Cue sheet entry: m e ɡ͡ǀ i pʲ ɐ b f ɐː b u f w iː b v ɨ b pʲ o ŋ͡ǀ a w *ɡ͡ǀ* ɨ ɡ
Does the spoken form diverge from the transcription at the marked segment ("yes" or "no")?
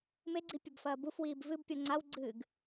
no